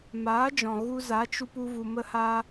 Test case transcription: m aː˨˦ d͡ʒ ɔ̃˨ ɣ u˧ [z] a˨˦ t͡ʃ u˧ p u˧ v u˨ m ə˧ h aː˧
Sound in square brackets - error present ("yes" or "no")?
no